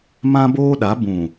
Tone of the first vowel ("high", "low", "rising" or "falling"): high